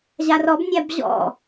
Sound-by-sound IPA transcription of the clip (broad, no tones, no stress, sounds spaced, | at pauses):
ʑ a r ɔ b nʲ a b ʑ ɔ̰